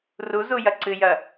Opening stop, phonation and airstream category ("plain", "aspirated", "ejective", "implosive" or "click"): click